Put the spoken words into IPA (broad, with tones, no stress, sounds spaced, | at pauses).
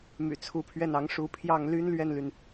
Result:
m y̰˨˩ t͡sʰ u˧˥ pʰ ɥ ɛ˥˩ n ɑ˧˥ ŋ ʂ u˧˥ pʰ j ɑ˥˩ ŋ l y˥ n l ɥ ɛ˥˩ n l y˩ n